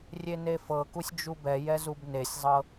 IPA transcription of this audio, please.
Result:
rʲ e n e f ɤ k u sʲ d͡ʒ u b ɛ j ɛ z u b n e sʲ zˤ ɤ

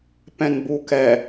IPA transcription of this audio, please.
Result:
p ɛ̃ n b u k ɛ

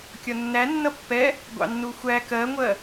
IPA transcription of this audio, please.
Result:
kʲ ɒ nː æ nː ʌ pː ɛ | ɡʷ ɑ̰ nː u xʷ æ k ɜ ŋʷ ɜ

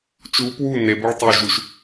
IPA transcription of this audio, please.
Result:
t͡ʃ u p w u n e b o ɭ tˤ o ʒ u ʃ

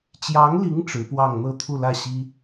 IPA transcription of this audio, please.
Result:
t͡ɕ j ɑ˧˥ ŋ l i˧˥ ŋ ʈ͡ʂ ɻ̩˧˥ p w ɑ˥˧ ŋ n̪ ɤ˥˧ t̪ʰ u˥˧ l ä˥˩ ɕ i˥

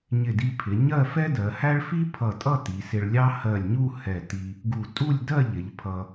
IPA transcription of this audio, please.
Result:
ɲ ɪ˧˩ d i˧ pʰ ɪ˩˧ ɲ ɜ˥˧ f ɛ˥ d ɜ˩˧ h æ˥ ɭ f i˥ pʰ ʌ˧˩ tʼ ʌ˥˧ t i˩˧ s ɪ˧ ɭ lʲ ɑ˥ h ɜ˧˩ lʲ ɲ u˥˧ h ɛ˧˩ t i˧ | ɡ u˧˩ tʼ u˥˧ lʲ d ɜ˥˧ ʎ ɪ˩˧ ʎ pʰ ʌ˧

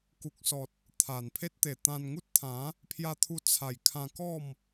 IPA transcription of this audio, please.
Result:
k u˨ k̚ s ɔ˨ t̚ | t̪ʰ a˨˩ n pʰ e˦ t̚ t̪ e˨˩ t̪ ã˧ n ŋ u˦ t̚ t̪ʰ ã˨˦ | pʰ j a˧ t̪ʰ u˧ t͡sʰ a˨˩ j kʰ ã˧ k ɔ˥˧ m

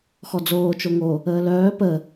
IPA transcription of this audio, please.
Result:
x ɔ d͡z oː t͡ʃ o ŋ o | əː l œː p ə

